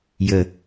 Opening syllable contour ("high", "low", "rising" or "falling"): low